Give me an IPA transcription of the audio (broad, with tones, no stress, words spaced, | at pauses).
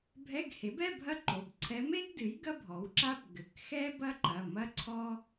bʱɛ˧˥˧ɡhe˩˥bɛ˧˥˧ bʱɐ˥ǃo˩˧˩bǀʰɛ˧˥ me˥ɡdɨ˩˥j ɡɐ˥bʱɔ˩˥wǁa˥b ɡɘ˩˧˩kxɛ˥ bɐ˥ǃɐ˩˧˩mɐ˥ ǀʰɔ˥